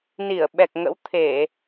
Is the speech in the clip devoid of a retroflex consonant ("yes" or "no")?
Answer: yes